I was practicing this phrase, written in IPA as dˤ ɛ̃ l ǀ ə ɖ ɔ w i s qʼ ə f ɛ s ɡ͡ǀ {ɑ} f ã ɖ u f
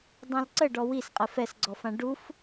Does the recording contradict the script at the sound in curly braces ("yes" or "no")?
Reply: yes